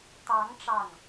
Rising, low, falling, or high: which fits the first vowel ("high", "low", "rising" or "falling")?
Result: rising